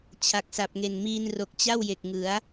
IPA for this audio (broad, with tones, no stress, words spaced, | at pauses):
t͡ɕʰa˨˩k̚sa˨˩p̚ŋe˨˩n miː˧nro˨˩k̚t͡ɕa˥˩w je˨˩k̚ŋɯ˩˦a̯